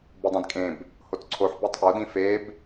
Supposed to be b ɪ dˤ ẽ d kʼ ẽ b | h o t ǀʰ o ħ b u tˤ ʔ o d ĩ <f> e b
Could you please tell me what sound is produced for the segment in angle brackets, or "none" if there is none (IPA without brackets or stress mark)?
f